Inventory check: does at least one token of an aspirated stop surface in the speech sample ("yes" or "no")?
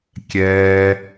no